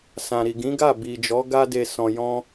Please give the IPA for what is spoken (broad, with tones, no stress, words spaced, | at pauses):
sã˨ɾi˨ɡĩ˨˦ ɡa˦˨bi˨d͡ʒɔ˨˦ ɡa˦ de˧ sɔ̃˨jɔ̃˧